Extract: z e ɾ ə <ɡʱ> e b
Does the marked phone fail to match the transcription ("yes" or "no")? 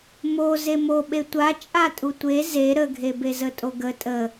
no